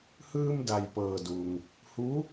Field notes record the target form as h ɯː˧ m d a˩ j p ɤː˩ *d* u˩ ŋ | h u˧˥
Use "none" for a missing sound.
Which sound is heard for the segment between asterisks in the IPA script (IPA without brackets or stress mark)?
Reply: d